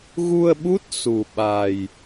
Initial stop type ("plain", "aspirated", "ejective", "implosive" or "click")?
implosive